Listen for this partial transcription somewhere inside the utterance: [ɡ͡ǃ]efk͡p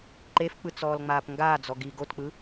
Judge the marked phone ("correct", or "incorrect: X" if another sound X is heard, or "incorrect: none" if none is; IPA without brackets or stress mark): incorrect: ǃ